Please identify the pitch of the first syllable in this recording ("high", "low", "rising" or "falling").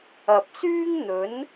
low